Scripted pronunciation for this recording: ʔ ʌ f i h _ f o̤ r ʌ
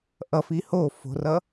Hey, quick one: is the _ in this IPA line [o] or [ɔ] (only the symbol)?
o